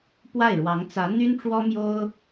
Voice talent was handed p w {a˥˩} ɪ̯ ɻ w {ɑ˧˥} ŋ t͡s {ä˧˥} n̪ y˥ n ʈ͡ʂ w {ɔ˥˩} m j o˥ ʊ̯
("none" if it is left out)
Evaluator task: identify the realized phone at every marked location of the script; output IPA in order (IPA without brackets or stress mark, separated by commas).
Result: a˥˩, ɑ˧˥, ä˧˥, ɔ˥